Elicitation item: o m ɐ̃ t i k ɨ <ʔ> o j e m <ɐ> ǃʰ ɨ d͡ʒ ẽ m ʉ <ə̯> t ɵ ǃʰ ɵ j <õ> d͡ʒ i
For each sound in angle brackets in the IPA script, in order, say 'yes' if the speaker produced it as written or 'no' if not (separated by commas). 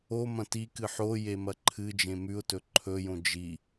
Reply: no, yes, no, yes